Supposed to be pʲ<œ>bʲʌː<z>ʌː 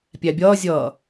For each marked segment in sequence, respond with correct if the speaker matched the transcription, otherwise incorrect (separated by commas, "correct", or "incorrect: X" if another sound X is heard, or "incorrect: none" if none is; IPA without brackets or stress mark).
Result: incorrect: æ, incorrect: zʲ